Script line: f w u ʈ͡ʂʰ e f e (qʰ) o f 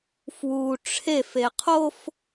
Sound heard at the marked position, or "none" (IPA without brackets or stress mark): qʰ